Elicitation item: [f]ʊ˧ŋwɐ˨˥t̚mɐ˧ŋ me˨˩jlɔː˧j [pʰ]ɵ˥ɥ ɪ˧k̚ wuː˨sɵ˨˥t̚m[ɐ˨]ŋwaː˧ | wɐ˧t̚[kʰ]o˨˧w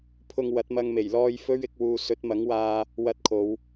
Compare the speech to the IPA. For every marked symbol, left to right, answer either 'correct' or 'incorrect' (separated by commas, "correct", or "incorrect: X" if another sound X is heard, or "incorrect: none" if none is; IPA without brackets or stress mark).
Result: incorrect: pʰ, incorrect: f, incorrect: ɐ˨˥, correct